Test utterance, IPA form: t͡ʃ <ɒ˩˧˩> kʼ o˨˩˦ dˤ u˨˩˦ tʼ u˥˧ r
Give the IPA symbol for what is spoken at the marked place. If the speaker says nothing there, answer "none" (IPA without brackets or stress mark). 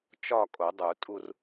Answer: ɒ˥˧